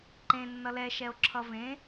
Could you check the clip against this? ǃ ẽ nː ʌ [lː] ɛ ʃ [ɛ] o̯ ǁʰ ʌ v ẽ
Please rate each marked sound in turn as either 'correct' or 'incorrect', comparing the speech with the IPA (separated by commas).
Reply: incorrect, correct